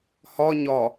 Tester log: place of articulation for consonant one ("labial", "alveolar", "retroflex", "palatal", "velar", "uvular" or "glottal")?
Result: glottal